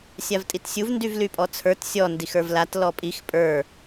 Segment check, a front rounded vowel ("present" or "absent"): present